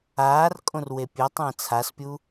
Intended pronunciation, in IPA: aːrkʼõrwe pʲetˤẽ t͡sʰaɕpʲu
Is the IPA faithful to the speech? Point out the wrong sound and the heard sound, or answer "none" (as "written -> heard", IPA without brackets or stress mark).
ɕ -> s